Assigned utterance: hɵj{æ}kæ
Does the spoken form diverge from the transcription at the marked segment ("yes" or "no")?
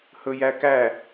no